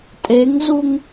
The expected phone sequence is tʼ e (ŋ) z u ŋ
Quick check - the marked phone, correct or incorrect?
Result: correct